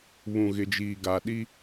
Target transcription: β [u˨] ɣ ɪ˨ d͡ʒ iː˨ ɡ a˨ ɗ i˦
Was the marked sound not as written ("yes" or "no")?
yes